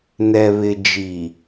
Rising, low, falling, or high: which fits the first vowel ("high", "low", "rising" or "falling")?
low